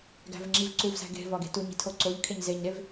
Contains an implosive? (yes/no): no